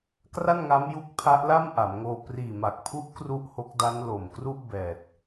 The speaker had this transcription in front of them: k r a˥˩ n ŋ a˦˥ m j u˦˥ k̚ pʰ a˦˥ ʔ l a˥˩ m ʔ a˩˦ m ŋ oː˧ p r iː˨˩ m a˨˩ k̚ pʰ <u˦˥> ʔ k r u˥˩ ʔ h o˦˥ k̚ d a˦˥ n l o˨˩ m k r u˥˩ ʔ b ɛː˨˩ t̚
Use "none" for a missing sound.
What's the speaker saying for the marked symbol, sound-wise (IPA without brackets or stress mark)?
u˦˥